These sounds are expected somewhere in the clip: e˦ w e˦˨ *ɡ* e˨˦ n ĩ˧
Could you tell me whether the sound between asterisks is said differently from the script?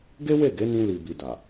no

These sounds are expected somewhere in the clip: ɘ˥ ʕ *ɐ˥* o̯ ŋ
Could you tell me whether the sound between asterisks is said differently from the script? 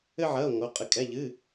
yes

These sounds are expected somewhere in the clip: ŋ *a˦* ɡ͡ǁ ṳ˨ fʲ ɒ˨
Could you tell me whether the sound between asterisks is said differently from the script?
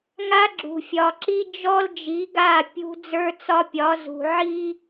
no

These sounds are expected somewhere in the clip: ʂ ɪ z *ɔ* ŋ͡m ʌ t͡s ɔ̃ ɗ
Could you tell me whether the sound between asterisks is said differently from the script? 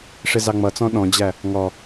yes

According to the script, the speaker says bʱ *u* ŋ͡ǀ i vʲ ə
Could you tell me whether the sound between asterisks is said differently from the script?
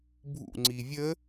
yes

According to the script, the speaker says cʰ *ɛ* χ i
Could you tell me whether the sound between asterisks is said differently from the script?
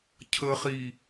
yes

